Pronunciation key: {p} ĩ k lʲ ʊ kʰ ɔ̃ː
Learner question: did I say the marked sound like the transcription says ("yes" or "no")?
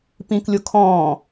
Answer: yes